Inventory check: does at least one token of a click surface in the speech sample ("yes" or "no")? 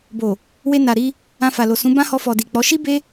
no